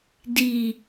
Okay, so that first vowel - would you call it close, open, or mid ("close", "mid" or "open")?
close